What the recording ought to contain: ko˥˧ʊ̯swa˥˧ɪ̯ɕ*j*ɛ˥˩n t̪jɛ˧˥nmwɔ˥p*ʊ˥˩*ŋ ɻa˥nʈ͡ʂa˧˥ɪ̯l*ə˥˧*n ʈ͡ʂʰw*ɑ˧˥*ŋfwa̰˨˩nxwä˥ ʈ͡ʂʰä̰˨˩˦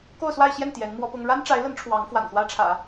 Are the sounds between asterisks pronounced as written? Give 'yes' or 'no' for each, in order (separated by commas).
yes, no, no, yes